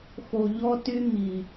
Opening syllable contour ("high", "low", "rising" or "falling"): low